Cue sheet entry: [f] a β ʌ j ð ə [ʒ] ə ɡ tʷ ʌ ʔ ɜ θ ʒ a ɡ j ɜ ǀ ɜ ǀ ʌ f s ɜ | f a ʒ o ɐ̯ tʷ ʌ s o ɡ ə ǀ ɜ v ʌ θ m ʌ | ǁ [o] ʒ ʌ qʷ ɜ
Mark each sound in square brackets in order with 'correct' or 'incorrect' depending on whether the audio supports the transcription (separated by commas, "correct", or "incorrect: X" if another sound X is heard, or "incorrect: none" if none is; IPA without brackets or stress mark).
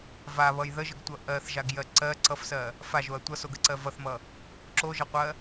incorrect: v, correct, correct